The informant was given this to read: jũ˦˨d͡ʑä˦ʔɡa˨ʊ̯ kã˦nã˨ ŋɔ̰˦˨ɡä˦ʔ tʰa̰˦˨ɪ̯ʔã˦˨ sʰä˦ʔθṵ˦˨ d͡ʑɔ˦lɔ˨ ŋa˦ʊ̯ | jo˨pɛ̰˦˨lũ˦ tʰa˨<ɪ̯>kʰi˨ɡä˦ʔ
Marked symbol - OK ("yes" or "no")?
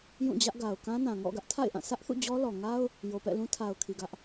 no